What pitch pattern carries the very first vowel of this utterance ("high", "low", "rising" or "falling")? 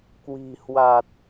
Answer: low